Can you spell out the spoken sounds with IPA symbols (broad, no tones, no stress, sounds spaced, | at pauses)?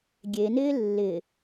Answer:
ɡʲ e n ɪː lː ɪ